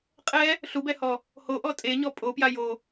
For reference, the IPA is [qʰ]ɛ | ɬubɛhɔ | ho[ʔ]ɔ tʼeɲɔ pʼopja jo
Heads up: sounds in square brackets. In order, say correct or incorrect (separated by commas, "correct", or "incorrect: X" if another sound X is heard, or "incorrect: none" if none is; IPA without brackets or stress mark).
incorrect: qʼ, correct